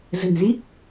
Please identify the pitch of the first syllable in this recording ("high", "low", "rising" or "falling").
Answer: low